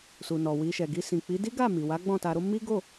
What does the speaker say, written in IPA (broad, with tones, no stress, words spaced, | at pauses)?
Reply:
su˨nɔ˨wi˧ʃɛ˨ ɡi˧sĩ˨k͡pi˨˦ di˦ɡa˦˨mi˨ wa˨˦ɡ͡bɔ̃˦˨ ta˧ɾo˦ mi˦ ɡo˦˨